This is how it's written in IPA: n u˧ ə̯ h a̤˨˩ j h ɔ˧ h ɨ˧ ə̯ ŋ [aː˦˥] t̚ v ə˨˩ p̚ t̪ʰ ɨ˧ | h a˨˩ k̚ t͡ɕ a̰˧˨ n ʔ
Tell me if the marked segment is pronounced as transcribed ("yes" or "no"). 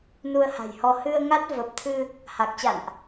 no